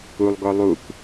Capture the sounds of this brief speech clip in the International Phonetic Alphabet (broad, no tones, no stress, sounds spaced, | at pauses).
u lˠ ɡ ɔ lˠ u k